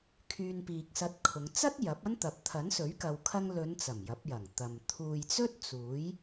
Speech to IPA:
kʰ yː˧ n p iː˨ k̚ s ɐ˧ t̚ kʰ ʊ˨˧ ŋ t͡s ɐ˥ t̚ j ɐ˨˥ p̚ ɐ˥ n t̪ ɐ˨ p̚ t̪ʰ ɐ˨˥ n s ɵ˨˥ ɥ k ɐ˨ w kʰ ɐ˧ ŋ l ɵ˨˧ n t͡s ɐ˨˩ m j ɐ˨˥ p̚ j ɐ˨˩ ŋ t̪ ɐ˨ m t̪ʰ uː˨ j t͡s ɵ˥ t̚ t͡s uː˨˥ j

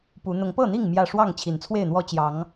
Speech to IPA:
p u˨˦ n̪ ʊ˨˦ ŋ p ɤ˥˨ n̪ i˥˨ ŋ m j ä˥˨ ʂ w ɑ˥˨ ŋ t͡ɕʰ i˨˩ n t͡sʰ w e˥˨ ɪ̯ n̪ w ɔ˦ t͡ɕ j ɑ˨˦ ŋ

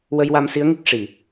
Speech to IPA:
w ə˧ j w a˧ m s i˧˥ ə̯ ŋ i˦˥ k̚ ʂ i˨˩˨

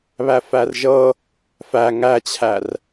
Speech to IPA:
β æ f æ r ʒ ɤ | f æ ŋ æ t͡ɕʰ æ r

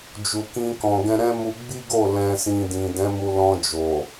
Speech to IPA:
d͡ʒ u˨ k ĩ˧ k ɔ̃˨ ɡ ɛ̃˧ ɾ ɛ̃˦ m u˧ ɡ͡b i˦ ɡ o˦˨ l ɛ̃˧ s ĩ˧ d ĩ˨ d ɛ̃˨˦ m u˧ l ɔ̃˧ d͡ʒ o˨

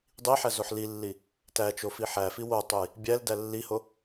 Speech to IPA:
dˤ i ħ æ z o ħ l i lː i | t æ t͡ʃ o f i ħ æ f i w o tˤ o j | bʲ æ l d æ lː i h o

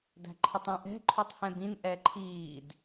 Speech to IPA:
d æ̤ ǃʰ ɪ tˤ ĩ ʔ ɛ̤ ǃʰ u tˤ h ɛ̃ b ĩ n ʔ ɛ ǃʰ iː d

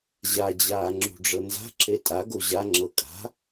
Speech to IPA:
ʑ a d͡ʑ aː ŋ͡ǁ ṳ ɖ͡ʐ ɤ n z a̤ ǁ e tʼ a ɡ o ʑ a ŋ͡ǁ ɤ kʼ a̤

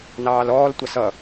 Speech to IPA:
n ɑː l ɔː l tʷ ɑ s ʌ

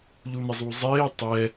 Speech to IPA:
ʎ u n ɪ zˤ u zˤ eː tˤ ɛ

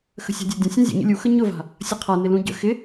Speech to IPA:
x ə̤ sʲ a̤ dʲ ə dʲ ə̃ sʲ ũ zʲ ə̰ ɲ ə̰ lʲ u x ə ɲ ʊ v a̤ | sʲ ʌ qʰ a n ɪ l ũ ɟ ə̰ x ɪ

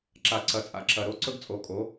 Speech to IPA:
ǁ a˨ ǀ ɐ˨ t͡sʼ a̰˨ ǁ ɐ˨ ɾ o˦ ǀ ɵ˦ ɡ t͡sʼ o˨˦ kʼ o˨˦

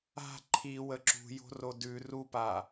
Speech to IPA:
a̤ ǃʰ i w ə ǁ ṳ j o̤ r o d ʉ r u p a

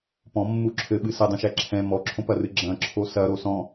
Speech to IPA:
p ɔ̃ mː u ǁʰ ɘ ɓ ɨ s ɘ dˤ ũ ʃ ɛ ǁʰ ɛ̃ m ɔ ǁʰ õ p ɐ r ɨ ɡ͡ǁ ɐ̃ ǁʰ o s ɐ ɾ o s ɔ̃

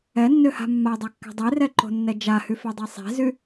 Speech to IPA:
ɛ nː ø h a̤ mː a dˤ a kː ɛ̤ dˤ e r ɛ ǃ o̤ nː ɛ d͡ʒ a h y f ɛ dˤ ɛ sˤ e̤ z y

